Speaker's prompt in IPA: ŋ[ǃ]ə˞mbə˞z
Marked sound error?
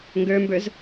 yes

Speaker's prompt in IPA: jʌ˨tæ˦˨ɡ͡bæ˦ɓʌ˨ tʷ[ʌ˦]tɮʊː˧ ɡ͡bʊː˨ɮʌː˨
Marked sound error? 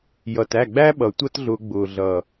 no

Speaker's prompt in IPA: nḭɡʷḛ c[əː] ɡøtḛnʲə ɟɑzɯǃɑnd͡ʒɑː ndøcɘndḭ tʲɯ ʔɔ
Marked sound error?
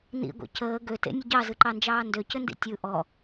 no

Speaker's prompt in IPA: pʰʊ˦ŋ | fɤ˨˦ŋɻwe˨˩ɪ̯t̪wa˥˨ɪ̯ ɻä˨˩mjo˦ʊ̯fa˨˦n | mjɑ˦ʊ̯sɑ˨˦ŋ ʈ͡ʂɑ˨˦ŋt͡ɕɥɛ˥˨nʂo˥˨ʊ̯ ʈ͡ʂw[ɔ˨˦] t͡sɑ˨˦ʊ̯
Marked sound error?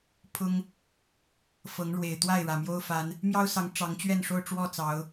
yes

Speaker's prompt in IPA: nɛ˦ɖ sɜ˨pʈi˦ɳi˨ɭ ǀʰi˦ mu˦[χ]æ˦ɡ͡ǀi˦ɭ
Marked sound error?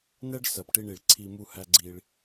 yes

